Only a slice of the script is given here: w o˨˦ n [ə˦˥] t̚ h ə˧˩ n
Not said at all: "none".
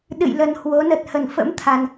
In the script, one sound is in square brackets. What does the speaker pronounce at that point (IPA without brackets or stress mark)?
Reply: ə˨˩